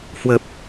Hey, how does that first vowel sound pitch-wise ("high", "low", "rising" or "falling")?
low